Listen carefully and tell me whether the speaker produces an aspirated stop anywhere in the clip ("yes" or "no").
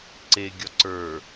no